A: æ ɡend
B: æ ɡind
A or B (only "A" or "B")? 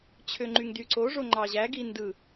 B